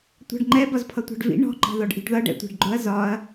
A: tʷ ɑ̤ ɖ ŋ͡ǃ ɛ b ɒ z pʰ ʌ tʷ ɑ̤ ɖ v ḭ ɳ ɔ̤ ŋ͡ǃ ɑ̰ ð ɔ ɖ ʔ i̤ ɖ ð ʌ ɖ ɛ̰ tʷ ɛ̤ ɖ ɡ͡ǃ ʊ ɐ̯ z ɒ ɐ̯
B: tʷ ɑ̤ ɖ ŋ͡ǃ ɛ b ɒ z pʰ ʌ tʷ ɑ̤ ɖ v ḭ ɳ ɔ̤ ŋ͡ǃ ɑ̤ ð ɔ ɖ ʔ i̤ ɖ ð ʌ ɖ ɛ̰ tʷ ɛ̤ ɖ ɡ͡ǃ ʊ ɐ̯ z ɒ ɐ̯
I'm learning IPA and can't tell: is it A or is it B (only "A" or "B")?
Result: B